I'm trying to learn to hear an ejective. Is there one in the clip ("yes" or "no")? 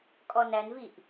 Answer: yes